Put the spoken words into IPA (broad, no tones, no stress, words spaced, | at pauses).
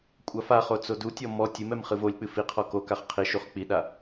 kʷʼafaχo t͡sodutʲɔ mɔ tʲɨmɛm χɨvolʲk͡pɨ fiqʰɔ kokaχ qʰiʃuχ k͡piɗa